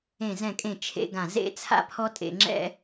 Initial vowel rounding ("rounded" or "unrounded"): unrounded